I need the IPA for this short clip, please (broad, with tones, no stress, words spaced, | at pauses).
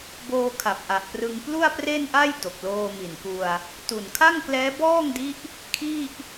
boː˧kʰa˨˩p̚ʔa˨˩ʔprɯ˧ŋ plu˥˩a̯pre˥˩nʔa˥˩j do˨˩k̚loː˧mi˨˩nku˧a̯ | tu˨˩n kʰa˥˩ŋklɛː˦˥bɔː˥˩ŋdi˦˥ʔ | kʰi˥˩ʔ